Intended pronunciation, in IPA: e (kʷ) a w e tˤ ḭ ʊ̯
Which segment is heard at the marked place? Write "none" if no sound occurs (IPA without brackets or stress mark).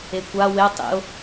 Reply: kʷ